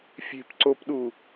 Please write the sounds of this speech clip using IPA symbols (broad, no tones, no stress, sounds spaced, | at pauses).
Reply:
fʲ e̤ p ǀ o p ɗ u